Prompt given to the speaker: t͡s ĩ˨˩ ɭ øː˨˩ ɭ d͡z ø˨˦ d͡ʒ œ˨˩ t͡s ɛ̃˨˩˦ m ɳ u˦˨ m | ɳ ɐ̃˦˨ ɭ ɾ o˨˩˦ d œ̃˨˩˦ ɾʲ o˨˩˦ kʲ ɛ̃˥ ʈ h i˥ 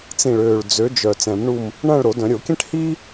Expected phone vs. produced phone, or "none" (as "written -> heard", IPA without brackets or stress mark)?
none